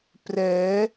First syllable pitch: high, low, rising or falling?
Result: rising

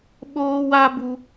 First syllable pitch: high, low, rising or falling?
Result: high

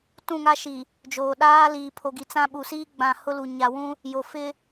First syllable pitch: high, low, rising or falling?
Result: falling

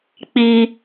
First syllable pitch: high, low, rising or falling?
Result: high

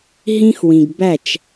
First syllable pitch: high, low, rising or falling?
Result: high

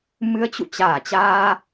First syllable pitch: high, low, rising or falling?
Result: rising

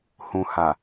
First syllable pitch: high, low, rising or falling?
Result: low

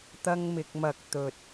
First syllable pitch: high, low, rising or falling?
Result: high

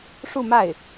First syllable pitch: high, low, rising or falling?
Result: falling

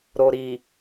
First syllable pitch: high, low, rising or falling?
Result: low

